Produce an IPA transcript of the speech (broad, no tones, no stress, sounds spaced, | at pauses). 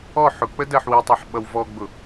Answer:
ɔ ħ ʊ k͡p ə d ɜ ħ w i tˤ ɛ ħ ɓ ʌ w v ɔ ɡ͡b ʊ